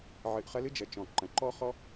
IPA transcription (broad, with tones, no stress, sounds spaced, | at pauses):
ʕ ɨ˨ ʔ χ ɐ˦ l ɨ˦ d͡ʒ ɐ˩ t͡ʃ ɔ̃˩ ǃ ɐ̃˩ ǃ ɔ˥ χ ɔ˥